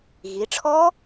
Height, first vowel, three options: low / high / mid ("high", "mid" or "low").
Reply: high